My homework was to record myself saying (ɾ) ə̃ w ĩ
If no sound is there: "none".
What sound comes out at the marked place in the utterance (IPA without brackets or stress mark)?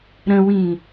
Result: ɾ